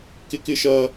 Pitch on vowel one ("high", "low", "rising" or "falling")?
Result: high